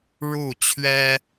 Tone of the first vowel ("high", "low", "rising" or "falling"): falling